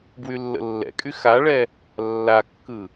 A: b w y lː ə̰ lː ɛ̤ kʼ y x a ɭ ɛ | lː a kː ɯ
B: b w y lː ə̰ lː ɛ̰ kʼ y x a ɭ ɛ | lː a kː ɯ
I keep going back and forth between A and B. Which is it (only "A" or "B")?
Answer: B